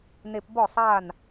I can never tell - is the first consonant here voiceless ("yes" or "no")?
no